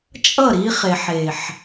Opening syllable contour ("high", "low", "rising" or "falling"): falling